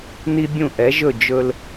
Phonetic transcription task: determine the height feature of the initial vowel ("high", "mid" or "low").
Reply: high